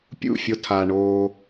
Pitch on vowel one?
falling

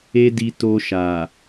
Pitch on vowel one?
high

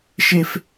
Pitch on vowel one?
high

